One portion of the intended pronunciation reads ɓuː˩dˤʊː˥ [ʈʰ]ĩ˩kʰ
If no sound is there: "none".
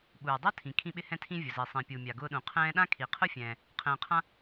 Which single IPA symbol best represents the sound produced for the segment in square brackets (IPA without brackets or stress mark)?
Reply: tʰ